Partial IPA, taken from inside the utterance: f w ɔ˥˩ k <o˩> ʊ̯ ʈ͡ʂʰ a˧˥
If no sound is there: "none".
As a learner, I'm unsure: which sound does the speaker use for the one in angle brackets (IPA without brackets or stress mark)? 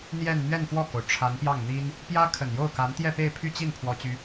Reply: o˩